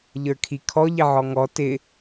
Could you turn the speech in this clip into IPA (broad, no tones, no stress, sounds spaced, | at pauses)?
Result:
ʎ ə˞ kʰ i kʰ ɔ ʎ ɪ ʕ ɔ ŋ ɔ t ɪ